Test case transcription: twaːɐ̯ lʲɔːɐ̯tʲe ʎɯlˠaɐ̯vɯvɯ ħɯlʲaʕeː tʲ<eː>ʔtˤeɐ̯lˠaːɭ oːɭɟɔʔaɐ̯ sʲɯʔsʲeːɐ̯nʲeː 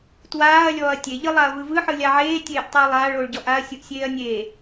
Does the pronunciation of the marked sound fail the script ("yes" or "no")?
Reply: no